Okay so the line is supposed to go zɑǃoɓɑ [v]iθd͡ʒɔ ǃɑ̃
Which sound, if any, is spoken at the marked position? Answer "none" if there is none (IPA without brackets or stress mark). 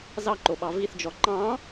v